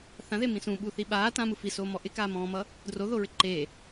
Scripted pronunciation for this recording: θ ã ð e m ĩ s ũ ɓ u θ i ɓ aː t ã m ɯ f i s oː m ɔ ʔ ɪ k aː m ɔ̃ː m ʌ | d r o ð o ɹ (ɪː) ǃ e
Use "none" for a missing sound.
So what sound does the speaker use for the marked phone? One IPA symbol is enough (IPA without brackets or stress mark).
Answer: ɪ